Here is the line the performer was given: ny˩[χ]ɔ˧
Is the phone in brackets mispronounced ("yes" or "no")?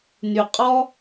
yes